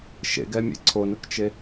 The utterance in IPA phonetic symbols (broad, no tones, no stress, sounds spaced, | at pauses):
ʃ ḛ ɡ ɛ mʲ ḛ ǀʰ o n ʊ k t͡ʃ e